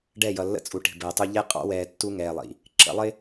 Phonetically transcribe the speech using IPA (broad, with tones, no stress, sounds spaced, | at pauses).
ɖ ɛ˦˨ j ʌ˨ lː ə̰˦ t͡sʼ u˨ ʈ i̤˨ b əː˨ tˤ u˦ ʎ ɛ˦ qʼ ɑ̰˦ w ɛː˨ tː u˦ ŋ ɛː˨ lˠ ḭ˨ | ǁ ə̰˨˦ lˠ ɪ˦